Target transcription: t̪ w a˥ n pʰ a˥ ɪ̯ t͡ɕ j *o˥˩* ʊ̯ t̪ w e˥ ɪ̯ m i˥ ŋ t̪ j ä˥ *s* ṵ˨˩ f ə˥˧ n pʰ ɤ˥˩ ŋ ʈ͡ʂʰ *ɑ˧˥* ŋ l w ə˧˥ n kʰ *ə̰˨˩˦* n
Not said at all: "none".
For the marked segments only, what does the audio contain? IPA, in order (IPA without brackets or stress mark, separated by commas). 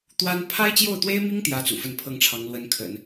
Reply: o˥˩, t͡s, ɑ˧˥, ə̰˨˩˦